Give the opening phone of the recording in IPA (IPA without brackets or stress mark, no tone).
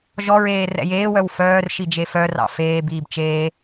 ʒ